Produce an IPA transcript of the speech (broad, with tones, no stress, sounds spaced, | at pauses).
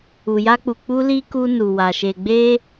u˨ j a˧ k͡p u˨ k͡p u˧ l i˧ k u˧ n u˨ w a˨ ʃ e˨ ɡ͡b e˧